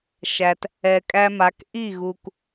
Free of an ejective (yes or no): no